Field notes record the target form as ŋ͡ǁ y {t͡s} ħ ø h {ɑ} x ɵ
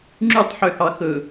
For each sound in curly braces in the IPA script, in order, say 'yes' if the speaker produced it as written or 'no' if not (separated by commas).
no, yes